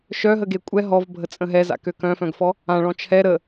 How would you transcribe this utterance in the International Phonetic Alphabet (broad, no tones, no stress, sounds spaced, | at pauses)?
ʃ œ ɦ ə ɡ e kʷʼ ɛ ɦ ɔ v bʱ ə t͡sʼ ə̃ ɦ ɛ z a̰ k ø k œ̃ f œ̃ ɡ f ɔ | ã ɭ ɔ̃ t͡ʃʰ ɛ ɾ ə